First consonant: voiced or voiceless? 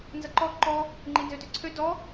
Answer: voiced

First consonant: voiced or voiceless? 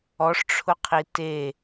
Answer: voiceless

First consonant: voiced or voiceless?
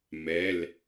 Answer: voiced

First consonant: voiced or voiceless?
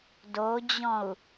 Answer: voiced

